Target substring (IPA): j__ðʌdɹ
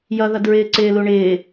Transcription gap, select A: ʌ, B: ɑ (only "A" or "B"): A